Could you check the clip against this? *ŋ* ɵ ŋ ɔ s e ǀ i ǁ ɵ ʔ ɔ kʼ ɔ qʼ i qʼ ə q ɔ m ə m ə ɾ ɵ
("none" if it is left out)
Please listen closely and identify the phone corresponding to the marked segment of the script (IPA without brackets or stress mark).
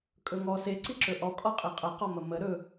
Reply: kʼ